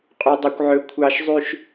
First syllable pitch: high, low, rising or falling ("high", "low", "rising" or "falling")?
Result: high